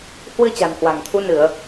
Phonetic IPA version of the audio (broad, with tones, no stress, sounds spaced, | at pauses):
h w ɨ˧ t͡ɕ a̤˨˩ n h w a̤˨˩ ŋ t̪ʰ u˨˦ n ɨ˧˩˨ ə̯